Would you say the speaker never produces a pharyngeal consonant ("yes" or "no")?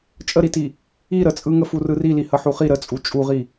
no